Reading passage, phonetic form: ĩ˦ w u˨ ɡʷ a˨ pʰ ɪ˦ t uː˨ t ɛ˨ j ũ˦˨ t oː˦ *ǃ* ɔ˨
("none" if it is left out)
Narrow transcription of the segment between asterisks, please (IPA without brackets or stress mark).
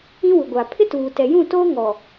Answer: ŋ